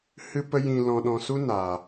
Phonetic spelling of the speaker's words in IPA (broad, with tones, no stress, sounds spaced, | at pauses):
h ɨ˧ p ə˧ j ĩ˨ l ɔ̃˨ ɗ ɔ̃˨ s u˧ n aː˨